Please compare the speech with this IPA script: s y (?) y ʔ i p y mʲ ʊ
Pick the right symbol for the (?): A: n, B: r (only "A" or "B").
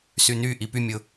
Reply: A